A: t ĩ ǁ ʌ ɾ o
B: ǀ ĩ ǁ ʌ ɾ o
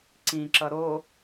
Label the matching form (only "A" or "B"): B